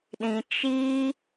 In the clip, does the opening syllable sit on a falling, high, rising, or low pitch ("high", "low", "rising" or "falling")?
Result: low